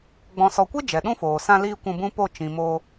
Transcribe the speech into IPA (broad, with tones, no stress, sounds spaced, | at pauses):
ɡ͡b ɔ̃˨ s ɔ˨ kʷ e˦ d͡ʒ ɛ˨ ɗ ũ˦ f oː˨ s ã˧ l iː˦ kʷ ũ˧ b ũ˦ p o˦˨ t͡ʃ ĩ˨ m o˧